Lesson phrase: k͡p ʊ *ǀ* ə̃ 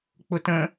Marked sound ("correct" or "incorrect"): incorrect